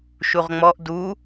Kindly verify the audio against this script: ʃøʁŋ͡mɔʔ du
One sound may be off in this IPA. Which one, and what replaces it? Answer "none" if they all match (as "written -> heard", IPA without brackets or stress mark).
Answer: ø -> u